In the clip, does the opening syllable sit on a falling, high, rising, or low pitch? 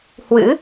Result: rising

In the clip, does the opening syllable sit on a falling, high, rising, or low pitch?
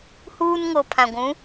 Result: high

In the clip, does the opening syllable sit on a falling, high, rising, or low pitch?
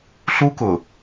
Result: high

